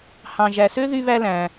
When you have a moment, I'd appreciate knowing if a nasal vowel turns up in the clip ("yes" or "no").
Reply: yes